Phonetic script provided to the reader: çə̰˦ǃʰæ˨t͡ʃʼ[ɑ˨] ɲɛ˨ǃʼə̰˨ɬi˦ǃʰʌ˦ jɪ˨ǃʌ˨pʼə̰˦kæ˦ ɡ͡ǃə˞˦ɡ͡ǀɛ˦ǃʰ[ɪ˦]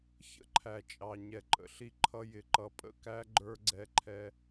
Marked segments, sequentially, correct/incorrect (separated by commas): correct, incorrect